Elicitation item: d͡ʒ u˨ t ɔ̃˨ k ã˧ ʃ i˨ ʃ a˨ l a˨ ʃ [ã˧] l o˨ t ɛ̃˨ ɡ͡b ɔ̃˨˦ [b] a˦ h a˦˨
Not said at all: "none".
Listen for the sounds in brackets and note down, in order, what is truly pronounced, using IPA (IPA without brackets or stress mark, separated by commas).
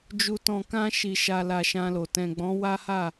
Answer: ã˧, w